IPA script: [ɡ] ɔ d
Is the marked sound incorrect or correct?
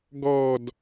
correct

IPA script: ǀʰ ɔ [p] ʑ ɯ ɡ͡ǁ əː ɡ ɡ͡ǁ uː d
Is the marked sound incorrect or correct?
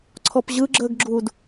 correct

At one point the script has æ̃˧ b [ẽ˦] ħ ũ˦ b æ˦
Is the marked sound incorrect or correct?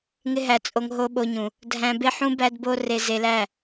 incorrect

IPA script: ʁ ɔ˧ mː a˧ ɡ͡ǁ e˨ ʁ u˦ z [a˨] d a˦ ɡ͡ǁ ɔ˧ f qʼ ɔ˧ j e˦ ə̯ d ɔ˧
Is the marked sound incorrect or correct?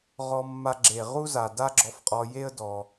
correct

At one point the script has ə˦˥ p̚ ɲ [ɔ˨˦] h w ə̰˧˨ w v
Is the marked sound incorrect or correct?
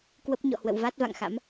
incorrect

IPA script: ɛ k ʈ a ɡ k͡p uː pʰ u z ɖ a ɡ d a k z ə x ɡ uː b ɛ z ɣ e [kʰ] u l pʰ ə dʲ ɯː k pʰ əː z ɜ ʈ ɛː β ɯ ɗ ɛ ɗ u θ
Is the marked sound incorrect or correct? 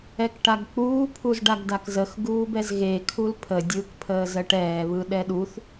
correct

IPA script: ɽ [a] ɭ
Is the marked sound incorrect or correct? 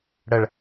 incorrect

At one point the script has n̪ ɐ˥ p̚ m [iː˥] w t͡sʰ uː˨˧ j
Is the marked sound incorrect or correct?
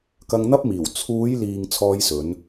incorrect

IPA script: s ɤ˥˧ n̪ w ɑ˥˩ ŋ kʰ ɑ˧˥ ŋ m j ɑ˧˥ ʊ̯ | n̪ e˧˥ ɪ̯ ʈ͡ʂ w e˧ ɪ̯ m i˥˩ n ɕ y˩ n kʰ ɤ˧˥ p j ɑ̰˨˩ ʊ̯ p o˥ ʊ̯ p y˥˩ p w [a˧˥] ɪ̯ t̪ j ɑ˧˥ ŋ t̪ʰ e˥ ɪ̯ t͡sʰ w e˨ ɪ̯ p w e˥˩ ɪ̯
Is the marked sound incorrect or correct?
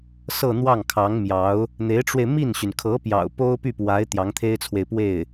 correct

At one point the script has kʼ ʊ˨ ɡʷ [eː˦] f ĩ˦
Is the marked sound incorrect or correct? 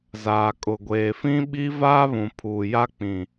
incorrect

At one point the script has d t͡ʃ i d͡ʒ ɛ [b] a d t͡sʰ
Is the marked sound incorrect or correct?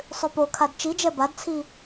correct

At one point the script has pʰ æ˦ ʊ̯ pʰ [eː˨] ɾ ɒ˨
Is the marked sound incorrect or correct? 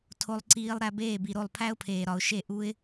correct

